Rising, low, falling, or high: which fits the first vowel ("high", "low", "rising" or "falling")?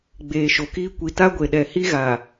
low